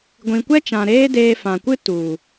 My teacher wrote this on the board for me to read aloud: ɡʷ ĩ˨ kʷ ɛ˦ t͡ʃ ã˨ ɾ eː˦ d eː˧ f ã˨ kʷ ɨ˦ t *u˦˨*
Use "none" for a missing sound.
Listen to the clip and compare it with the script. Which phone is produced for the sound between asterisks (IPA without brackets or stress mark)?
u˨